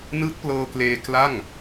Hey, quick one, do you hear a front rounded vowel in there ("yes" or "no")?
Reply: no